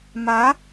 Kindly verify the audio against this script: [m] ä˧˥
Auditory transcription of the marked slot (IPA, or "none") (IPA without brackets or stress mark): m